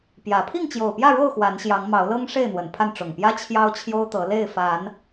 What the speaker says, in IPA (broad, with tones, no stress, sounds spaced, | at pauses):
p j ä˨˦ pʰ i˥˨ ŋ t͡ɕ j o˨˩ ʊ̯ p j ä˥˨ ɻ o˥˨ ʊ̯ x w a˨˦ n ɕ j ɑ˨˦ ŋ m ɑ˨˦ ʊ̯ l ɤ˦ ŋ ʂ e˥˨ ɪ̯ n̪ w ə˨˩ n pʰ a˥˨ n ʈ͡ʂ ʊ˨˩ ŋ p j ä˦ t͡ɕʰ j ɑ˦ ʊ̯ t͡ɕʰ j o˦ ʊ̯ t̪ ɤ˨˦ l e˥˨ ɪ̯ f a˨˦ n